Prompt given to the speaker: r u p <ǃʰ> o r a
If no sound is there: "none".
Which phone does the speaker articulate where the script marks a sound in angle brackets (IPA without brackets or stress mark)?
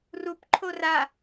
ǃʰ